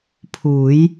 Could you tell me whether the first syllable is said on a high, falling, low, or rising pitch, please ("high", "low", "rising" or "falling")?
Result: rising